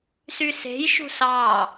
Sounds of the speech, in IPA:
syse̤jʃṳ sɑ

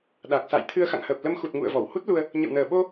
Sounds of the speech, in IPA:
ɗa˨˩k̚ sa̰˧˨jt̪ʰɨ˧ə̯xa̰˧˨ŋhəː˨˩p̚ lə˧mxu˨˩t̚ ŋṵ˧˨ə̯vɔ˧˩w hu˦˥t̚lu˧ə̯ | ɲə̰˧˨wnəː˨˩ ɓo˧

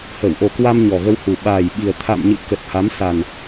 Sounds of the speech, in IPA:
hə˧˩wʔo˨˩kwa˧m ɲɔ˨˩ɣə˧whu˨˩ ɓaː˨˩jɓi˨˩ə̯ t̪ʰa̰˧˨mɲɨ̰˧˨ kə˨˩t̚ha˨˦msa˨˩n

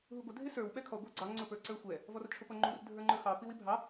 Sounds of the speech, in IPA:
ɦuɡʷə dʱɪsə˞w ɓɛkʰɔ ɡʷæɡ͡ǀɑ ŋ͡ǀʊpə˞ǀə˞xʷɛ | vɔrt͡ʃʰʊpʌŋ͡ǃur dʱə˞ŋ͡ǃə˞xɑ piwibʱɑ

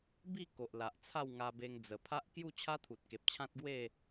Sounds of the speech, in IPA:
bi˥˧ ko˨ʔla˨ʔ t͡sʰa˥˧wŋa˧be˧ŋ d͡zə˨˩pʰa˦ʔ kju˥˧t͡ɕʰa˦t̪ʰu˨t̚ ke˨p̚t͡ɕʰã˦t̚ɡwe˥˧

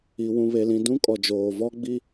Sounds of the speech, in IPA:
i˨ wũ˨βe˨lĩ˨ dũ˦kʼɔ˨d͡ʒoː˨ vɔ˦ɡ͡bi˦

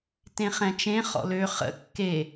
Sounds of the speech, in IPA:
tẽχɛ̃t͡ʃẽ χɔ̰lø χə̰ kːe

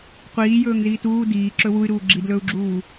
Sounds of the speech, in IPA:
qʷiːjɵːŋ ziːtuː diː ǁɵwuy̯ɾuː ɡ͡ǁidlɵːu̯ɡ͡ǁuː

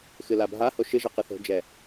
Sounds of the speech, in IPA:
xɨlabʱaho ʃɨʒɘ qɨθo̤d͡ʒɛ

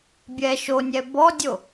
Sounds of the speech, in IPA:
bʲɛ ʃonʲɛ bɔdʲo

